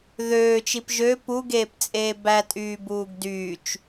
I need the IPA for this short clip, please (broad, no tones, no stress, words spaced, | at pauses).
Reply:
ðøːt͡ʃip ʒø puɡeːpt͡sʼeː bætʼyːbuːɡ dyːt͡ʃ